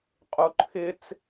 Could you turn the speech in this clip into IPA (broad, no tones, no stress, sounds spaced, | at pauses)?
qʼ u ǃʰ ɪ t͡s